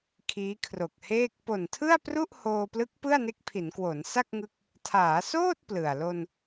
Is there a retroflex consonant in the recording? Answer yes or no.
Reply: no